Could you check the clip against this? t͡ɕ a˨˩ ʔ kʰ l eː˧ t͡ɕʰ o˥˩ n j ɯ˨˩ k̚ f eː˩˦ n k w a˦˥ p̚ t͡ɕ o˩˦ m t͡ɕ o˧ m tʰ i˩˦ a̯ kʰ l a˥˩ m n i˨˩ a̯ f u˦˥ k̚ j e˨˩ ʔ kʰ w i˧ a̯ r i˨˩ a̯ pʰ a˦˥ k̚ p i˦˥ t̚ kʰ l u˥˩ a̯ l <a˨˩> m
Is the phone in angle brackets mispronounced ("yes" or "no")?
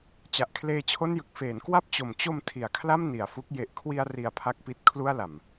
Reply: no